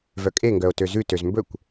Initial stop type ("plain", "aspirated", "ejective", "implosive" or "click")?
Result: ejective